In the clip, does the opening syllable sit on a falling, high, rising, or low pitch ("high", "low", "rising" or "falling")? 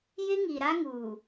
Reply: high